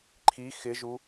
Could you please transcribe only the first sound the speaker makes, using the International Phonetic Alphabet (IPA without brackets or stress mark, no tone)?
ǃʰ